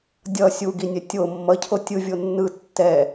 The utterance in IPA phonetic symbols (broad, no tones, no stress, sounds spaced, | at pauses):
dʲ ʌ sʲ u ɡ i nʲ ɛ tʲ o mː ʌ cʰ o tʲ ɯ vʲ o nː ɯ tː ɛ